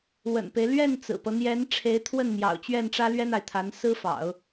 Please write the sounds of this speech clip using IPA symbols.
w ə̰˨˩ n p e˦ ɪ̯ l ɥ ɛ˥˩ n t͡s ɹ̩˨˩ p ɤ˦ n̪ j ɛ˧˥ n ʈ͡ʂʰ e˧˥ ɪ̯ t̪ʰ w ə˥˩ n m j ɑ̰˨˩ ʊ̯ t͡ɕ ɥ ɛ˥˩ n ʈ͡ʂ ä˥ l ɥ ɛ˥ n̪ a˨ ɪ̯ t̪ʰ a˧˥ n s ɹ̩˥ f ɑ̰˨˩˦ ʊ̯

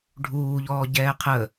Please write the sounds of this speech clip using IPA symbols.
ɖʱ uː ʎ ɔː ɟ ɛː qʰ ə

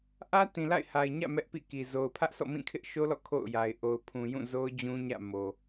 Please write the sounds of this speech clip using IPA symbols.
ʔ ä˦ t ĩ˨ l a̰˦˨ ɪ̯ h a˨ ɪ̯ ɲ ä̰˦˨ m ɛ˦ ʔ p ḭ˦˨ k i˨ z o˨ ʊ̯ pʰ ä˦ ʔ s ɔ̰˦˨ m ĩ˦˨ kʰ ɪ˦ ʔ ʃ o˦ l ɔ̰˦˨ kʰ o̰˦˨ ʊ̯ j a˨ ɪ̯ ʔ o˨ ʊ̯ pʰ ũ˨ j ũ˦˨ z o˦ ʊ̯ d͡ʑ ũ˦ ɲ ä̰˦˨ m o˨

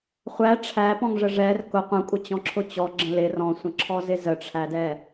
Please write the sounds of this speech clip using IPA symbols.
χʷ æ ʈ͡ʂʰ æ p ɔ̃ ŋ ʐ ə ʐ ɛ r k ʊ qʷ ə̃ kʷʼ ə t͡ɕ ɔ̃ ǁʰ ʊ t͡ɕ ɔ ɡ͡ǁ ə̃ l ɪ r ɔ̃ sʷ ə̃ ǁʰ ɔ z ɪ z ə ʈ͡ʂʰ æ d ɛ

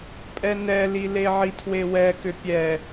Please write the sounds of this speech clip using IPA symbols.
pʼ ɛ n ɛ l i l e ʕ i tʰ w e w ɛ k ʏ pʲ ɛ

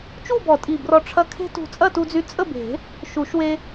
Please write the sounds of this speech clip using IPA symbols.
t͡ʃ u˥˨ b ɔ˨˩˦ tʼ i˧˩ b r ɔ˧ ʈ͡ʂʰ ɐ˧ kʰ e̤˦˥ t ṳ˧˩ t͡sʼ ɐ˥˨ t u˧ d͡z y˧ t͡sʼ ə˥˨ b e̤˨˩˦ | ʃ u˨˩˦ ʃ w e˧

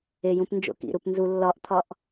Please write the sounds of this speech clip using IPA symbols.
e j ũ p n d͡ʒ o̰ k ḭ ɾ u p n z u lː ɒ ʔ t̪ʰ ɒ ʔ

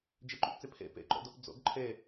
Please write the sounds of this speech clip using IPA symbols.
d͡ʒ ɛ ǃ o p t͡s ɛ pʰ ɛ̰ p ɛ̰ ǃ ɔ̰ d ɔ p d͡z ɔ̰ ɡ ǃʰ ɛ

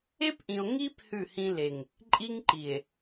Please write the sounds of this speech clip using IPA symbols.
e˦ p ʔ ĩ˨ o̯ ŋ i˦ p h ʉ˦˨ h ĩ˦ l e˨ ŋ | ǃʼ i˦ ŋ ǃ i˨ e̯

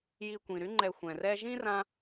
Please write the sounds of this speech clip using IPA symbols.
j i˨ kʷ ĩ˩ ɾ y˦ ŋ͡ǃ ɛ˨ xʷ ɛ̃˩ r ɛ˦ ʒ ĩ˥ r ã˥

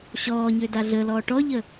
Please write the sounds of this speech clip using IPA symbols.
ɕ ɔː ɲ ø d a ɮ ə l ɔː ʈ ɔ ʎ ə

